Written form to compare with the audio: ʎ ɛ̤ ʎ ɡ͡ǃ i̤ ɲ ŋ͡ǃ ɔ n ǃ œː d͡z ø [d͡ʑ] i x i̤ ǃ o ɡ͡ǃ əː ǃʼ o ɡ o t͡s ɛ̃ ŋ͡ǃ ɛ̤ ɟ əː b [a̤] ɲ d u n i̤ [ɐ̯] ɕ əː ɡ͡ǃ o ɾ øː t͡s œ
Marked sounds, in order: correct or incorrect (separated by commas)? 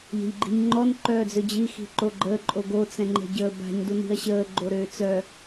correct, correct, correct